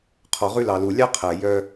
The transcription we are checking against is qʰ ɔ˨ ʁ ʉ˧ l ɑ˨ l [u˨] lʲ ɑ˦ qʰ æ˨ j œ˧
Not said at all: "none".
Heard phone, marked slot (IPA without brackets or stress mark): u˨